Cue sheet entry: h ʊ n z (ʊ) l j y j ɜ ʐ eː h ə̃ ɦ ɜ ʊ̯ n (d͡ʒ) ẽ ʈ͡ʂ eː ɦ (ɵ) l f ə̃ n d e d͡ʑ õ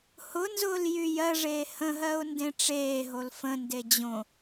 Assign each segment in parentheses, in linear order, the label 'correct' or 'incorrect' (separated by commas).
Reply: incorrect, incorrect, incorrect